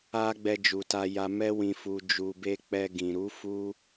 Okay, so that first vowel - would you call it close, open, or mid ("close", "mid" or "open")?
open